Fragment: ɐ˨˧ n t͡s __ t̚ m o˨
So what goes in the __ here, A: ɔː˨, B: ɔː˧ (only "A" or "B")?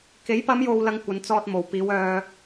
B